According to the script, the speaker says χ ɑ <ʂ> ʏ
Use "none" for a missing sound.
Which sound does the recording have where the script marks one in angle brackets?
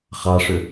ʂ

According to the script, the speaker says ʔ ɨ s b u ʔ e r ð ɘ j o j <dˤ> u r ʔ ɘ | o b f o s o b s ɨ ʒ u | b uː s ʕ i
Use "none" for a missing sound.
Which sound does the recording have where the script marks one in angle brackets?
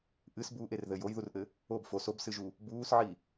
ð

